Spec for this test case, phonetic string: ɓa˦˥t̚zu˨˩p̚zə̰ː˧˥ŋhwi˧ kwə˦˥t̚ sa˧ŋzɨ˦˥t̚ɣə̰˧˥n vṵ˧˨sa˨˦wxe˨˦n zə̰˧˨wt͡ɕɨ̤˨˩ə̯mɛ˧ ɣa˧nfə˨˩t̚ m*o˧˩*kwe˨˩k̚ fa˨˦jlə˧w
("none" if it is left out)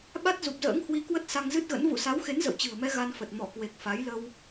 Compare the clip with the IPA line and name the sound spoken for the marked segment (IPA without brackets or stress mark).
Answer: ɔ˧˩